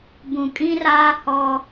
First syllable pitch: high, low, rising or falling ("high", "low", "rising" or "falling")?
low